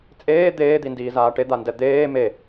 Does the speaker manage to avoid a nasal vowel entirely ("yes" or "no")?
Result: yes